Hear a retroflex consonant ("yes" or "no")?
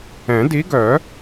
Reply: no